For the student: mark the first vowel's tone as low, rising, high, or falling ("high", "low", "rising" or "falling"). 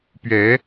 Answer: rising